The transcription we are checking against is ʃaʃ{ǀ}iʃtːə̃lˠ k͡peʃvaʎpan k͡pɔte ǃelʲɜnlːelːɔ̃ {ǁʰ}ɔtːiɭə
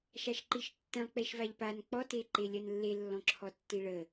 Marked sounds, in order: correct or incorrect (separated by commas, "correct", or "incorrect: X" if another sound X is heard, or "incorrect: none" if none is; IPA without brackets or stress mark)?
incorrect: ǃ, correct